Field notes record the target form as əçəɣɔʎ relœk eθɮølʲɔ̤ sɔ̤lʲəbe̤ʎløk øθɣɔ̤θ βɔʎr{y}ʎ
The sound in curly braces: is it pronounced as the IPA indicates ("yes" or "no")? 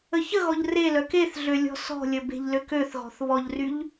yes